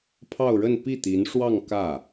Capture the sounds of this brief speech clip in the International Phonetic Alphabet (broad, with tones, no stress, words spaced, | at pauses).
pʰɑ˥˧ʊ̯ɻə˥˧n pi˥˩t̪i˧˥nʂwɑ˥˧ŋ kä˥˩